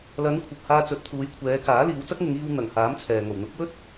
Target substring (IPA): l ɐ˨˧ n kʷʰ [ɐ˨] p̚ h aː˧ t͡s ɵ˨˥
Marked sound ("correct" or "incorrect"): correct